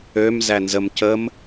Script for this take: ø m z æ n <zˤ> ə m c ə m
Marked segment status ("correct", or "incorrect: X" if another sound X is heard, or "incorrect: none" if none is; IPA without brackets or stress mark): incorrect: z